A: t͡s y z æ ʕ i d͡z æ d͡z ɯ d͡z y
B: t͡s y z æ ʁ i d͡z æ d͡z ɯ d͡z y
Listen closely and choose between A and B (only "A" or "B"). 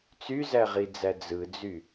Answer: B